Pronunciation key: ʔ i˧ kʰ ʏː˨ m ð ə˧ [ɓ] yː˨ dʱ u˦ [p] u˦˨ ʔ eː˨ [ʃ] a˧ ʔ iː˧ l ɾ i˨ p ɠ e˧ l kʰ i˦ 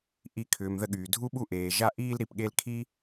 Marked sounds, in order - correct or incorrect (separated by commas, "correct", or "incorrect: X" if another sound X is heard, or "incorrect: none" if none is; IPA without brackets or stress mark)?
incorrect: ɠ, incorrect: ɓ, incorrect: ʒ